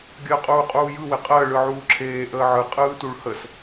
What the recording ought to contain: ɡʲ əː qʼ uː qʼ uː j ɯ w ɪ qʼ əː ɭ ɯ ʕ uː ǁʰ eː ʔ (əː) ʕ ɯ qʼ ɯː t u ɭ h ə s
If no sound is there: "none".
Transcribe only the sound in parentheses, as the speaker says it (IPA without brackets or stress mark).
əː